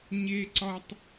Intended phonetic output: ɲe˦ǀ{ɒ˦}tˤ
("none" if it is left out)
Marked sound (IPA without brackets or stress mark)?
ɒ˦